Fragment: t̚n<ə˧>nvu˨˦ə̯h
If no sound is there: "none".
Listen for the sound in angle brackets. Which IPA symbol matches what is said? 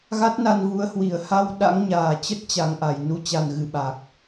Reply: a˧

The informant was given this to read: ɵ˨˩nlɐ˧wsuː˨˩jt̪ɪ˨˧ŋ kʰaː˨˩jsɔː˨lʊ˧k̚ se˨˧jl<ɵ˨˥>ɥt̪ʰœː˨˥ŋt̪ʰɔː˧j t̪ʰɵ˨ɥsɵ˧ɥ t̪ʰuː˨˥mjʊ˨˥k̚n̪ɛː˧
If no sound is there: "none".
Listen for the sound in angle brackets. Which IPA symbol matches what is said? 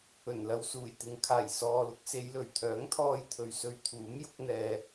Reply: ɵ˨˩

